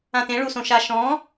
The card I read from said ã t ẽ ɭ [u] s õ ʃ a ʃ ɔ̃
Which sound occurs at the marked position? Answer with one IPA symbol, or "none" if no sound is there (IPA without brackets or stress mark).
u